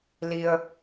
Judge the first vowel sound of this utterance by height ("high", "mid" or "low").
high